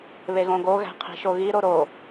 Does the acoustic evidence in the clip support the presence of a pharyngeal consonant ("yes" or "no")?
no